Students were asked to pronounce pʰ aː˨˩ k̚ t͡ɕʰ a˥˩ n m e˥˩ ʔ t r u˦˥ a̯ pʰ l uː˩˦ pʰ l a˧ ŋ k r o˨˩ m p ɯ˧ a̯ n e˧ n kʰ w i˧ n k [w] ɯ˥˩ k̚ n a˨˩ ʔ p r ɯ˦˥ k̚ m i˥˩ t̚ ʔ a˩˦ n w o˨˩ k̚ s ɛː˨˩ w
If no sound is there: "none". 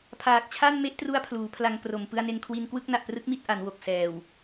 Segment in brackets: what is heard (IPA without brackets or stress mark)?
w